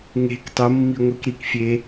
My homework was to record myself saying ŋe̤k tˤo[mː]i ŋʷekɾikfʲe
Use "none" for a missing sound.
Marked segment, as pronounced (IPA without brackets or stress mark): mː